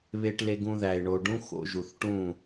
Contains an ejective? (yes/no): no